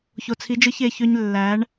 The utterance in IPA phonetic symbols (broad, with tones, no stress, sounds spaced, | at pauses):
ç o˨ t͡sʰ i˨˦ d͡ʒ ɯ˧ ç e˨ ç ø˧ ɲ lː æ˨˦ ɳ